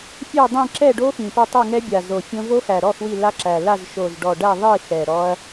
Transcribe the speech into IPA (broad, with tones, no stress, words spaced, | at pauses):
fʲɛ˥˧ dˤĩ˥˧ ǁɛ˥˧ɖo˦˥xĩ˨˩ pæ˥˧tˤu˥˧ŋɛ˦˥bʲa˨˩ zo˨˩fʲõ˦˥ vo˦˥xæ˨˩ɾɔ˥˧x wi˥˧la˦˥ǁæ˨˩ la˥˧z ʃo˨˩zɖɔ˨˩ ɖæ˥˧ðˤi˥˧ xɛ˨˩ɾɔ˦˥ɐ̯